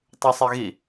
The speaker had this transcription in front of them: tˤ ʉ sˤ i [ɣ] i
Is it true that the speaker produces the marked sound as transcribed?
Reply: yes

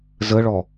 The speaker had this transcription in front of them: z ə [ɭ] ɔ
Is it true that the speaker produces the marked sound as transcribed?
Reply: yes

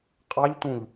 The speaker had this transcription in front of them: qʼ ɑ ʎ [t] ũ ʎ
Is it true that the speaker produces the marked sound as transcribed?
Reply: yes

